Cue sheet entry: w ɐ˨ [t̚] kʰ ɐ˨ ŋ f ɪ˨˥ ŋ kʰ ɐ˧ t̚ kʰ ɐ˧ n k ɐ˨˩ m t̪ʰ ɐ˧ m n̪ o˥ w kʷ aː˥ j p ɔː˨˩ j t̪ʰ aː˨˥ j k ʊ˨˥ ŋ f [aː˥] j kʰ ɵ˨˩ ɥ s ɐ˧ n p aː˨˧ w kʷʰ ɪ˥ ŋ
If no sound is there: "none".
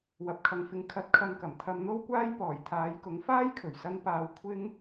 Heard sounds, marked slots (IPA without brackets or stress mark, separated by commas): p̚, aː˥